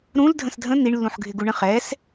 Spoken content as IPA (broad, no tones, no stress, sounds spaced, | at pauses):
ɾ ũ l dʱ ə̃ s dʱ ə̃ n̪ i ɳ lː ũ ħ ɡʱ ɪ ɡ u ɳ ə̃ χ ɛ s